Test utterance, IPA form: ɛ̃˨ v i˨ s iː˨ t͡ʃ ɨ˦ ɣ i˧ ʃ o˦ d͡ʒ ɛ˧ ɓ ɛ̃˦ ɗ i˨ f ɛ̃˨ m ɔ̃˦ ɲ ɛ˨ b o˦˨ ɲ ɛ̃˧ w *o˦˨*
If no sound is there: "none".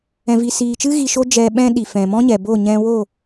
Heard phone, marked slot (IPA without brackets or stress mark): o˦˨